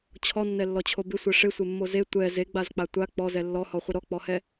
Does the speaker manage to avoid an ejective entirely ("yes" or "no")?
yes